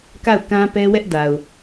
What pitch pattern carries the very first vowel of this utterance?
falling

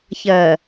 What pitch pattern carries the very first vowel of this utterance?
low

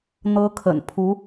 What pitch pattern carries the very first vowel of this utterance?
high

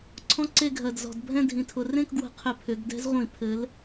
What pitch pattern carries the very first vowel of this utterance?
high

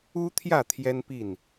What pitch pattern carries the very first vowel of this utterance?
high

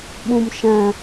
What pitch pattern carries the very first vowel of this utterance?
low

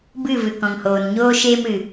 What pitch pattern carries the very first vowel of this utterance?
falling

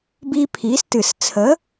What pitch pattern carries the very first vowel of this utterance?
high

